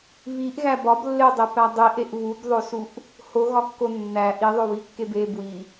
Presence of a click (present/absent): absent